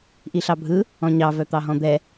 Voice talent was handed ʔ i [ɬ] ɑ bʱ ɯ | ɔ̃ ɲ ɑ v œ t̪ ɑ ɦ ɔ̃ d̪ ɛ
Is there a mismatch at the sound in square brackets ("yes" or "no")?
no